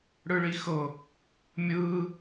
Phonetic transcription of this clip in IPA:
ɽ ɯ ɭ i x ɤ | mʲ ɯ

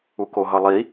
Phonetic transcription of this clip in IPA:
u k o ɦ ʌ lˠ i

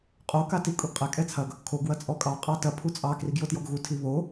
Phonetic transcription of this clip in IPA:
qʼ o k a t i kʼ u ɡ qʼ ɛ kʼ ɛ t͡sʰ ɐ ɡ | kʰ o ɡ w ɐ t͡sʼ ɔ kʼ ɑ qʼ ɑ t ɐ pʰ u t͡sʼ ɑ k r i ɡ j o t j ɔ ɡ ɣ u tʰ i β o

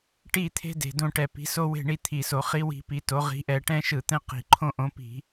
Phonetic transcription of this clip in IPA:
ʈ i˦˨ t̪ʰ e̤˦ d e̤˨˩ d õ˦˨ ʈ ɛ˧˩˧ p i̤˨˦ s o˦ w e̤˦˨ ɳ i˦˨ t̪ʰ i˨˩ s o˧˩˧ χ i˨˦ w i̤˨˦ p i˨˦ t o˨˦ ʁ i̤˨˦ ʔ ɛ˧˩˧ ʈ ɛ̃˦ ʃ ɯ˧˩˧ t̪ ɛ̃˦ q i̤˨˩ ǃʰ õ˦ ʔ õ˨˦ p i̤˧˩˧

